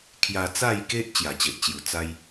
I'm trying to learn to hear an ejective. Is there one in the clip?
no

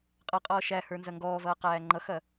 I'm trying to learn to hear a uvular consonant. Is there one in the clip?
yes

